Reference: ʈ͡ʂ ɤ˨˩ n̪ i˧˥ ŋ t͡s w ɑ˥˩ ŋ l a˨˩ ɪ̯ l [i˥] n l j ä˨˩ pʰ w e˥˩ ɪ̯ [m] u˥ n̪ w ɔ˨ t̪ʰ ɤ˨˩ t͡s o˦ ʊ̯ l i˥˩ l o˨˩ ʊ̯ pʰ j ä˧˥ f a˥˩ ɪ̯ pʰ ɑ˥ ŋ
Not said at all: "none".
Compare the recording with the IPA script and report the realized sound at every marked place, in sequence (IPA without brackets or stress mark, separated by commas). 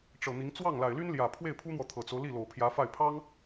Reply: y˥, pʰ